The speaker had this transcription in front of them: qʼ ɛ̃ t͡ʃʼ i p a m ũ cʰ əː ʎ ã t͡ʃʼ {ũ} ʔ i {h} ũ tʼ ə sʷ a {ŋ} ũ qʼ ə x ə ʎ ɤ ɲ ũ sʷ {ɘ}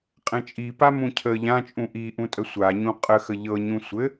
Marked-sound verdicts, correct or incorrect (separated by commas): correct, incorrect, incorrect, correct